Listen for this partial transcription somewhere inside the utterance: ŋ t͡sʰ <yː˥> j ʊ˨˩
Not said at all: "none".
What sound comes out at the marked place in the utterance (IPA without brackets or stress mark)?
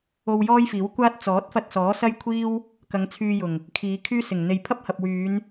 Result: yː˧